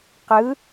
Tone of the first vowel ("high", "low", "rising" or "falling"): rising